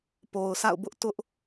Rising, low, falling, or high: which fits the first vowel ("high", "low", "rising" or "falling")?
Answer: low